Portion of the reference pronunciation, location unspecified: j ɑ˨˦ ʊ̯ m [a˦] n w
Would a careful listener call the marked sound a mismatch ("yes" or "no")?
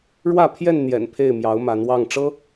yes